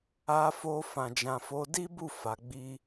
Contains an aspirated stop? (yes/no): no